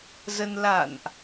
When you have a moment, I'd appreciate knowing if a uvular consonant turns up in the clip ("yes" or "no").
no